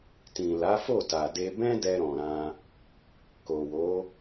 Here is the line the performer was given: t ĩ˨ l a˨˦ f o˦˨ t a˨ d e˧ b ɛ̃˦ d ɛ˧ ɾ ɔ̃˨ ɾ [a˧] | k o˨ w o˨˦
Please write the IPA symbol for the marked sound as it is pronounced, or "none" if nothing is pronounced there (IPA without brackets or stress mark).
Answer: ã˧